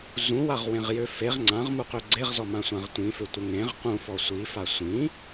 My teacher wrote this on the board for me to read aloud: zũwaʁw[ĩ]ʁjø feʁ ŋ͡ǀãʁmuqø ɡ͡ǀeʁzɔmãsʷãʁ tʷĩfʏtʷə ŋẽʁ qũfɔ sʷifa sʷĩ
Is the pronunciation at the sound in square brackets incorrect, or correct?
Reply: incorrect